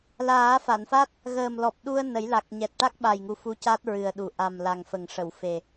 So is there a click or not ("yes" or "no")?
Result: no